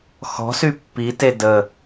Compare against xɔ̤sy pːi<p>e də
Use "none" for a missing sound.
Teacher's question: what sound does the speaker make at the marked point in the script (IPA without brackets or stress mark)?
t